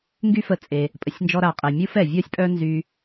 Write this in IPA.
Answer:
ŋ ɡ y˥ f ə˧ t͡sʼ e˩ | pʼ ə˩ sʲ n d͡ʒ ɔ˧ ɾ a˩ qʼ ɛ˩ mʲ u˥ f ɛ˩ vʲ ɔ˥ sʲ pʼ œ˥ n z y˧

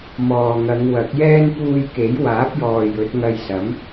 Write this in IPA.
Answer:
m ɔː˨ ŋ ɐ˨˧ ŋ w ɐ˨˥ k̚ j ɛː˥ n p uː˧ j k e˨˥ j w aː˨˥ p̚ j ɔː˨ j ɵ˨˥ t̚ ŋ ɐ˧ j s ɐ˨˥ m

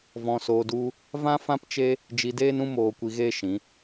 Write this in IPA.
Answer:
v ɔ̃˧ s oː˧ d u˦ | v ã˦ f ã˦ p t͡ʃ e˦ | d͡ʒ i˧ d eː˦ n ũ˦ m oː˧ kʷ i˧ ɣ eː˦ ʃ ĩ˨˦

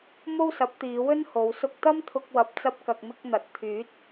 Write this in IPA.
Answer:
m o˥ w s ɐ˨˥ p̚ t̪ iː˨˧ w ɵ˥ n h o˨˧ w s ʊ˧ k̚ t̪ ɐ˥ m t̪ʰ ʊ˧ k̚ w ɐ˨ p̚ t͡s ɐ˧ p̚ k ɐ˨ k̚ m ɪ˧ k̚ n̪ ɐ˨˥ t̚ t̪ʰ yː˨˥ t̚

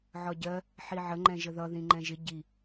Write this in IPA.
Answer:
ʕ ɒ ɟ ɜ | ħ i ʕ ə ŋ͡ǃ ɛ̃ ʒ ə ð ʌ ð ĩ ŋ͡ǃ ɛ̃ ʒ ɪ ɟ i

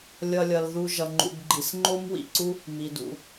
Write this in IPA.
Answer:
lʲ ʌ˨ lʲ ʌ˩ l ð u˨ ʒ ʌ˩ ŋ͡ǃ ṵ˩ b ɡ͡ǃ i˩ s ŋ͡ǃ o˦ m w ḭ˨ ǀ u˦ | m i˩ d ṵ˩

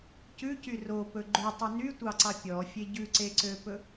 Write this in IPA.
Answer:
c ʉ c y r o p ɵ ɡ͡ǃ ʉ tˤ y n y tʷ ɑ ǀ ɑ pʲ ɔ fʲ e ɟ ʉ ǀ e ǀ ø p ɵ

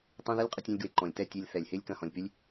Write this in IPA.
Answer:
tˤ ɐ̃˦ ð ɐ˦ lʲ qʼ ʊ˧ tʲ ɔ̃˧ lʲ ɡ w e˨ ǃ ɔ̃˨ lʲ t ɛ˦˨ tʲ e˧ lʲ θ ɛ˨ lʲ h ɪː˦ lʲ k ɐ̃˧ h ɔ̃˨ lʲ p y˦ lʲ

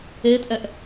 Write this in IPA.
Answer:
eː t ʔ ɛ ʔ

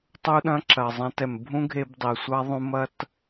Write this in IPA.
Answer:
tˤ u˦ ɗ ɐ̃˦ ǁ ɐ˨ zˤ ɛ̃˧ t ɛ˨ m bʱ ũ˦ ɡʱ e˧ b dˤ i˨ sʷ a˦ ðˤ ũ˧ m ɐ˧ t

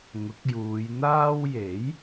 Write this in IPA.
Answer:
ŋ ʊ˨˥ k̚ j uː˨˧ j n̪ aː˥ w j e˨˥ j

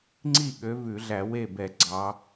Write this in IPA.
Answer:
ŋ͡ǀ i˥˩ ɠ ø˨˦ v ʉ˧˩˧ ɮ æ˧˩˧ w e˥˩ b ɛ˧˩˧ ɡ͡ǀ ɑ˨˦

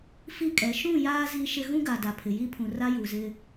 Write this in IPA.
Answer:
f i˦ kʼ ɛ˨˦ ʃ ũ˦˨ j aː˦ z i˦ ʃ ɪ˦ ɣ ũ˦ ɡ a˨ d a˨ pʰ ɪ˨ j i˦ pʰ ũ˨ r a˦ j u˨ z ɪ˦

